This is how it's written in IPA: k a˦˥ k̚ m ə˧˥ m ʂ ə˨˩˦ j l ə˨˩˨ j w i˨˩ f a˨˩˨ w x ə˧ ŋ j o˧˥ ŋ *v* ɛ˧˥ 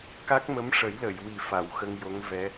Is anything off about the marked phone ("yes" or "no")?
no